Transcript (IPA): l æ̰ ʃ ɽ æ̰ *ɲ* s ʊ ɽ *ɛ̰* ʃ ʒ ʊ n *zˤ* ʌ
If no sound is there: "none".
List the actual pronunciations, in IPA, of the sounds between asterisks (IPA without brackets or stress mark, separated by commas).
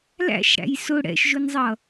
j, ɛ̰, zˤ